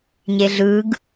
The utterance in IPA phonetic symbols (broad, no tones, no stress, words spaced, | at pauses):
ɲeɮɯɡ